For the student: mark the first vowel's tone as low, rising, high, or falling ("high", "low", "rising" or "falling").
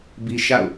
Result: high